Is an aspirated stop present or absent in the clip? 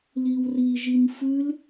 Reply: absent